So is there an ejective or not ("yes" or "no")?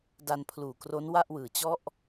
no